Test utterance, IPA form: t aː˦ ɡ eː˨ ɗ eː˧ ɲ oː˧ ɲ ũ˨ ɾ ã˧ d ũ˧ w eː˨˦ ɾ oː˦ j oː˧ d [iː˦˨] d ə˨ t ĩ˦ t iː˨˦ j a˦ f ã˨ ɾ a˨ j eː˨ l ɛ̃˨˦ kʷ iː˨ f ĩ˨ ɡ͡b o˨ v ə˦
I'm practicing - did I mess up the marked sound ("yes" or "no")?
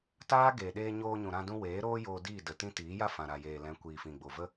no